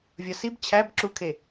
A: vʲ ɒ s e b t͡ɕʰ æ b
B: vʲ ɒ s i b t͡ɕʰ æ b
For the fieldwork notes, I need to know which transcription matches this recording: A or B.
B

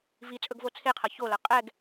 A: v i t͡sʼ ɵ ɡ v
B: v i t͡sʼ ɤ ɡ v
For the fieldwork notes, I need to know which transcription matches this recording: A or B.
A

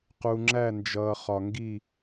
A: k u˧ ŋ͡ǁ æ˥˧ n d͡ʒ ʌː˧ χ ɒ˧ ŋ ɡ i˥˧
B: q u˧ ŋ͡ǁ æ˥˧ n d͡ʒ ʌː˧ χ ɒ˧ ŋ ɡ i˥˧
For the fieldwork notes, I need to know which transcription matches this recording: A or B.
B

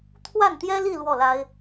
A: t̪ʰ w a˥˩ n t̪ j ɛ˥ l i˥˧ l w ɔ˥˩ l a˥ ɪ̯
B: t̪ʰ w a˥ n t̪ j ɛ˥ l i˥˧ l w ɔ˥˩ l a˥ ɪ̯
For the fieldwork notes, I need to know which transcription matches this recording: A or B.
A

